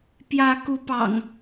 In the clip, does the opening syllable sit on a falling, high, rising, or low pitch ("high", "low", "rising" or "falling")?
rising